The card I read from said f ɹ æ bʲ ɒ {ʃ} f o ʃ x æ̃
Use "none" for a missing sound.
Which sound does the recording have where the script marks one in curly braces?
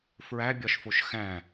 ʃ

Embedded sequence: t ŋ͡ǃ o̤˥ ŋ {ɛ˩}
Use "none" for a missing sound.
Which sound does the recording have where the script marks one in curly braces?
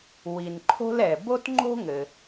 ɘ˩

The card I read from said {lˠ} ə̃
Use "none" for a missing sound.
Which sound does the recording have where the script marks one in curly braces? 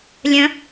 lʲ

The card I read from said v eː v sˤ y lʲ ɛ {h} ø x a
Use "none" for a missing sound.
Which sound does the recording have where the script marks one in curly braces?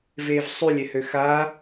h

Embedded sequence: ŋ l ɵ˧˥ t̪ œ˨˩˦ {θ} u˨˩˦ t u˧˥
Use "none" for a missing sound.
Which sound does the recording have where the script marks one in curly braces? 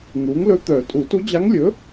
tʼ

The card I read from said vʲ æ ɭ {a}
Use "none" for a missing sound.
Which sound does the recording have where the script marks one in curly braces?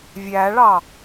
ɑ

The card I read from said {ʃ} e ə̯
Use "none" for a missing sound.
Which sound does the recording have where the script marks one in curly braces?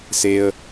s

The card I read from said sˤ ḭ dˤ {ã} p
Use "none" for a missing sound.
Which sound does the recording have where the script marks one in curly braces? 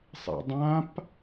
ã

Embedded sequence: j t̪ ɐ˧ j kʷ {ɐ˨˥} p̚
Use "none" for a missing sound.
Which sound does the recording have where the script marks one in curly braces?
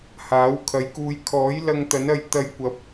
ɐ˨˥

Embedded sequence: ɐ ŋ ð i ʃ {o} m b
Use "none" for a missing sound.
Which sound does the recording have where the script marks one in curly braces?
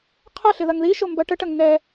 o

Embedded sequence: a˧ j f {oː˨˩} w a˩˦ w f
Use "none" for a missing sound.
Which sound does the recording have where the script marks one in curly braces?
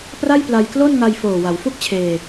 oː˨˩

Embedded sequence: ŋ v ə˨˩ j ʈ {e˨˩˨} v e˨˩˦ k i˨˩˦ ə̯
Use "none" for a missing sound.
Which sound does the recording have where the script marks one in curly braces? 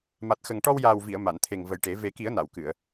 e˨˩˦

